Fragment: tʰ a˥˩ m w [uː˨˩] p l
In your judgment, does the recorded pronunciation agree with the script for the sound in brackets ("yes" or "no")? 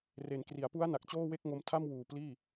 yes